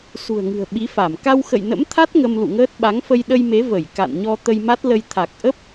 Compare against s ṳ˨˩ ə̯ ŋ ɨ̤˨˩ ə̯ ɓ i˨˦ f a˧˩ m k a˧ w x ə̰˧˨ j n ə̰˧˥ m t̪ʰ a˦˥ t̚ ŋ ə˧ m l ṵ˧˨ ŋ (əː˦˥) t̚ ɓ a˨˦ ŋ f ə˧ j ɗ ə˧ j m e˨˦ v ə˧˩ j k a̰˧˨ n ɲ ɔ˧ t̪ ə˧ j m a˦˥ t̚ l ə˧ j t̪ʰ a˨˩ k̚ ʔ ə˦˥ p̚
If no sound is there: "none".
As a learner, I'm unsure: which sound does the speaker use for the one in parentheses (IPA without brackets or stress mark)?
əː˦˥